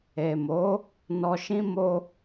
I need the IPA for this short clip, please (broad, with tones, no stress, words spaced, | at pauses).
e˨mo˨˦ | nɔ˧ʃĩ˦ mo˧